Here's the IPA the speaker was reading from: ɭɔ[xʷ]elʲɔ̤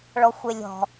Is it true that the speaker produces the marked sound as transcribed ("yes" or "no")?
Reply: yes